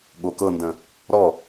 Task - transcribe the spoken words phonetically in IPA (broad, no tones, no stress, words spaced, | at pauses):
ɠokɤndə̃ | ɾɔ